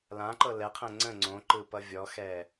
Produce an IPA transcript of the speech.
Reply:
lãǃɤ lɛqʰɛ̃ ŋ͡ǀə̃ ŋ͡ǀõǃɯ pʌvʲɔxɛ

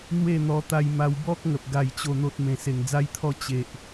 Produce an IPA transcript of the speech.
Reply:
n̪we˥˧n̪ɔ˧t̪a˧j ma˧wbɔ˦k̚ ŋə˨p̚ ɡa˥˧jt͡ɕo˥˧n̪o˦t̚ mẽ˨˩se˨˩ŋd͡za˧jt̪ʰɔ˧ t͡ɕe˨ʔ

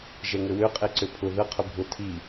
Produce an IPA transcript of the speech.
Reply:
ʒɛŋɘwøqʼe ǀøpʰʊ ðə qʰʊbʱʊ tʰi

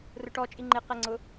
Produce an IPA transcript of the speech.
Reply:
rʊʈɔ t͡ʃʼiŋ͡ǃɪ qɛŋ͡ǀʊ

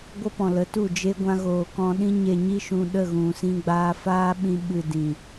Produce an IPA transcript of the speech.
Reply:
ɡʷə˦pɔ̃˨lə˨˦tu˦˨ d͡ʒe˧ɡʷã˧ɣoː˨ kɔ̃˧ɗĩ˦ɲe˧ ɲi˦ ʃũ˧ɗə˦˨ɣũ˨ sĩ˧ɡ͡baː˧faː˦ɓĩ˧ ɓɨ˧ dĩ˨

